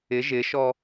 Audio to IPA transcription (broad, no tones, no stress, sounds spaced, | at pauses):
ɪ ʒ ɪ ʃ ɔ